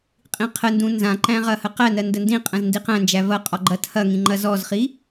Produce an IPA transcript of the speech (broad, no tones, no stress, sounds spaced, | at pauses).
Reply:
qʼ ĩ qʰ ə n d ũ n z ã ǃ æ̃ ʁ ɐ h ə q æ n ɜ n d ə n d ĩ qʼ ə̃ z n d i q æ̃ n d͡ʒ æ v ɐ qʼ ɔ ɡ͡ǃ ɐ tʰ ɐ ŋ ĩ ŋ͡ǃ ɐ z ɔ z χ i